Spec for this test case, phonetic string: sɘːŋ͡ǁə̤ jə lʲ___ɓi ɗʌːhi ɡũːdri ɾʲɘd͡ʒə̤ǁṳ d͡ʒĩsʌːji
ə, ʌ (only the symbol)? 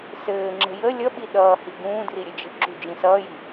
ʌ